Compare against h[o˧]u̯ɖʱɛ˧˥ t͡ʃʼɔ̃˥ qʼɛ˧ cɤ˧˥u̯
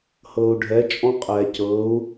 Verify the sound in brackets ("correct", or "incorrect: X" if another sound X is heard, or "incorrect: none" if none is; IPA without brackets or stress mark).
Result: incorrect: ɤ˧